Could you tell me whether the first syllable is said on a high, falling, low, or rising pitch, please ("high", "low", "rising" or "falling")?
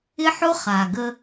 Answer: high